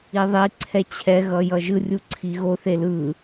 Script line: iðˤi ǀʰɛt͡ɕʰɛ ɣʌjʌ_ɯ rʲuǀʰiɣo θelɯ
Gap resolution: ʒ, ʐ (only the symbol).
ʒ